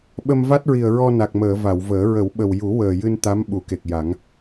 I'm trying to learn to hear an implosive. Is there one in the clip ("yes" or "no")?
yes